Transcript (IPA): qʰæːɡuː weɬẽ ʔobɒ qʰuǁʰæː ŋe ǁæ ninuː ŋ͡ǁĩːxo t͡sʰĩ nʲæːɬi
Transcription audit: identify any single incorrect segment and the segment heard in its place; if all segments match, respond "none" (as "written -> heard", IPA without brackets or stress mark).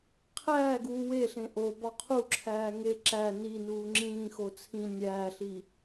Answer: none